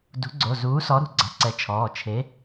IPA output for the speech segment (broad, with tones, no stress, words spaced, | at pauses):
dṳ˨˥ɡ͡ǀo˩˧˩ zuː˨˥sɔ˨˥ɾṳ˩˧˩ ɡ͡ǀa̤˨˥ǀɛ˨˥t͡ʃʰɔː˩˧˩ t͡ʃʰe˨˥